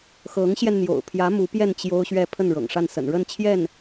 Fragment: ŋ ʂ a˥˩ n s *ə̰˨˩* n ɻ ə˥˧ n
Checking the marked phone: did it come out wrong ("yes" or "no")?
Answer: no